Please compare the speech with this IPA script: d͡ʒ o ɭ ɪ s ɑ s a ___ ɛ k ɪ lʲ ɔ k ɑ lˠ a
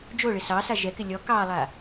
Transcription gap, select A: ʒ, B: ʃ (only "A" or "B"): A